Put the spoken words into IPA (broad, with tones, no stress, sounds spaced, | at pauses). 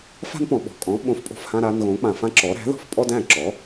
f a̤˥ n p ɔ̃˩ ɓ ɔ̤˩ kʼ ɔ̃˩˥ ɓ õ˩˥ f pʼ o̤˧ f h ã˧ ɾ a˧ n ɣ õ˩˥ k͡p ã˩ f ã˥ ǁ ɔ˩˥ ɾ æ̤˩˥ ð ɔ̤˧ f pʼ ɔ˥ d æ̃˥˩ ǁ ɔ˩˥